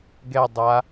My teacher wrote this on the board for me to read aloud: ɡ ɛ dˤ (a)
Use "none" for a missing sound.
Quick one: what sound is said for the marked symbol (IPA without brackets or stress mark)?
a